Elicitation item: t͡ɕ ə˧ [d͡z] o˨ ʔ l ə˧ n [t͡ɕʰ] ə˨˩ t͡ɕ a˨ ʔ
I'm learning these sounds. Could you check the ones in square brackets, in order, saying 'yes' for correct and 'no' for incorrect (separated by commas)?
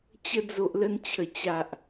yes, yes